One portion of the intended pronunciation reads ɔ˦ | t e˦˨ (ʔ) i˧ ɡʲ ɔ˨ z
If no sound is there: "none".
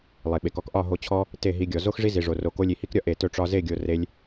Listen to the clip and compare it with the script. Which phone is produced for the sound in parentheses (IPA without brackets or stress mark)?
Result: ɦ